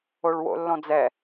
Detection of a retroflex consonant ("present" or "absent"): present